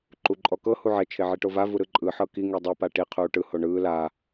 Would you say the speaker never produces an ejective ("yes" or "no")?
no